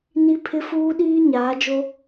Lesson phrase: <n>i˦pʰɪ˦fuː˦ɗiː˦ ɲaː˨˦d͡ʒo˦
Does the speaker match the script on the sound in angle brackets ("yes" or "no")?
yes